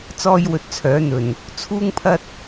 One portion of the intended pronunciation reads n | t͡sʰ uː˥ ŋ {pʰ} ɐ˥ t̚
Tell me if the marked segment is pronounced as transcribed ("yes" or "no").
yes